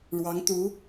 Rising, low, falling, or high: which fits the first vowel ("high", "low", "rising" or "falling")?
rising